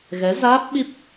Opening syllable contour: rising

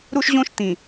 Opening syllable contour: high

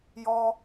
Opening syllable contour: high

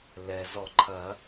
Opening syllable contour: low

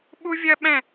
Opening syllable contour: high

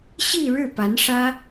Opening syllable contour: falling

